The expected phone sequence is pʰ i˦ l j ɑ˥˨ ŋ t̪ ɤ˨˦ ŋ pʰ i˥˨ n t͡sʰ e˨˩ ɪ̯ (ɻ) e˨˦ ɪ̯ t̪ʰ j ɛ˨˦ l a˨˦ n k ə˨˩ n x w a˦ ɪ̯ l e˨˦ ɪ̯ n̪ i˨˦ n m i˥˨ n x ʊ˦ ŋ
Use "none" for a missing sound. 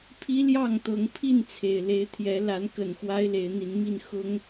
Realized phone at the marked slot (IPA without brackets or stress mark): l